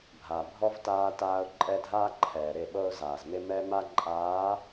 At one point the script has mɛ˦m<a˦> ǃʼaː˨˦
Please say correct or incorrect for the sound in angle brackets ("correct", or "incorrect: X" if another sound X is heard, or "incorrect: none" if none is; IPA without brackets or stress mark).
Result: correct